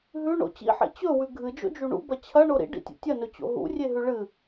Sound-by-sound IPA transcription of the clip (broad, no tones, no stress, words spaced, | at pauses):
ɦʉɳo̰ t͡ɕḭħḛ t͡ɕɵwʉ ɡʱɨd͡ʒo̰d͡ʒu ɳṵbɐ t͡ɕʰɐɳo ɾḭɖḭtʲo̰ tʲɐnɵt͡ɕo̰ ɦṵrʲeɦʉ ɭɨ